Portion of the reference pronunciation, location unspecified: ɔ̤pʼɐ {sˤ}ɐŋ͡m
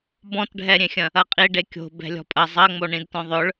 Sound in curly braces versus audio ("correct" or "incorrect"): incorrect